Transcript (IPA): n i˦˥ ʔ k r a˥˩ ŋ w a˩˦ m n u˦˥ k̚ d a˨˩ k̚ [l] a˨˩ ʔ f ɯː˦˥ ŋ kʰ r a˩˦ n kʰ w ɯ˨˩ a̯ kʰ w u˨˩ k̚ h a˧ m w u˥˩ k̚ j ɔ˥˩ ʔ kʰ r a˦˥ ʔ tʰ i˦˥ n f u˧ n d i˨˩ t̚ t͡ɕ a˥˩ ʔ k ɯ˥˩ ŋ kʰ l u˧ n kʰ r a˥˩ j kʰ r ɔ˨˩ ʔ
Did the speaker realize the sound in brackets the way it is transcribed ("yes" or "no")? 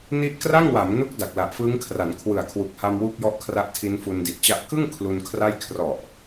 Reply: yes